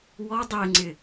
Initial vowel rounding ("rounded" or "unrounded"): rounded